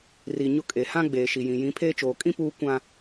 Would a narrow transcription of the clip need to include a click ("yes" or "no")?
no